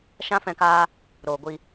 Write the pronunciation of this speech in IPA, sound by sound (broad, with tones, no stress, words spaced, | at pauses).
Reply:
ʃã˦fɛ̃˦˨kaː˦ | ɾoː˨ɡʷi˧